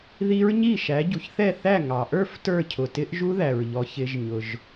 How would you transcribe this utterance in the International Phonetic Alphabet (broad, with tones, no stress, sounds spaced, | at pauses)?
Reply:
ð i˦˥ ɹ ɲ i˥˩ ʃ æ˨˥ ɟ u˩ ç θ ɛ˥˩ θ æ˥˩ ŋ ɑ˩ ʔ ə˞˥˩ f t ə˞˥˩ cʰ ʊ˩ t ɪ˦˥ ʔ ʒ u˦˥ ð æ˩ ɹ ʎ ɔ˩˧ ç ɪ˩˧ ʒ ɲ ʊ˩ ʒ